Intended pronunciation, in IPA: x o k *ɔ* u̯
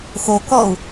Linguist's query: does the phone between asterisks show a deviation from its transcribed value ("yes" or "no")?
no